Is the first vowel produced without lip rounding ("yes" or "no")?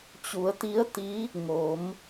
no